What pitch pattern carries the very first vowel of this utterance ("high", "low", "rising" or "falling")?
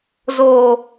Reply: low